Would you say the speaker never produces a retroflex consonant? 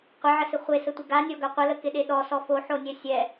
yes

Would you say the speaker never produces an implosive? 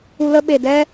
no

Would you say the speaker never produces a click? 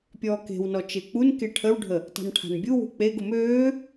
yes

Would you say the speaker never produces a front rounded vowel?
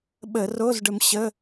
yes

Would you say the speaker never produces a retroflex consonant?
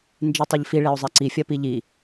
no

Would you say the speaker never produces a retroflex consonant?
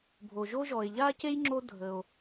yes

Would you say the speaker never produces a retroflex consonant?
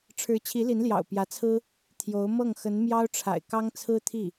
no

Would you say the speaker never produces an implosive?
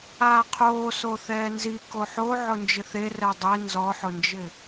yes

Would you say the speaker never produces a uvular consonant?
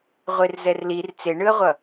no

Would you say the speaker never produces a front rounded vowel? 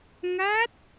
yes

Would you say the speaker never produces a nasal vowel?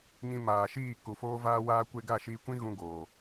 no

